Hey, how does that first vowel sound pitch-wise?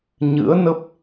rising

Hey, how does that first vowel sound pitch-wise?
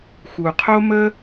low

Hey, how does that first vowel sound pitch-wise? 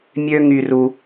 high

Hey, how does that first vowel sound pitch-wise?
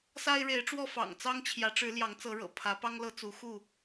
high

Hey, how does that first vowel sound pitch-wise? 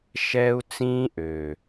high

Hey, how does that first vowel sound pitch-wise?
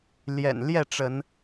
low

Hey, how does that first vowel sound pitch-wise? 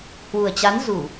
low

